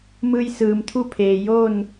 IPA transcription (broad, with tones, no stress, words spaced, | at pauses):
mɯː˧jsɯː˩mt̪ʰu˥˨pʰeː˩ jo˥˨n